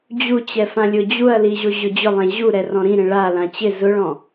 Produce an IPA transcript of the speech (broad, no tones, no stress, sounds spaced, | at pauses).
d͡ʑ u t͡ɕ ɛ f ã lʲ ʊ d͡ʑ u ɐ̯ l i ʑ o ʑ ʊ d͡ʑ ʊ lˠ ɛ̃ ʑ u ɾ ɛ r ɔ̃ ɾ ĩ ɾ ẽ ɭ a l ã t͡ɕ ɪ z ʊ ɭ ɔ̃